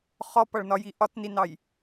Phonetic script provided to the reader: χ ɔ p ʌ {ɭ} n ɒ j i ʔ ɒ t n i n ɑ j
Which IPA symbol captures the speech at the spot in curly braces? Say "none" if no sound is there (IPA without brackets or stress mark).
ɭ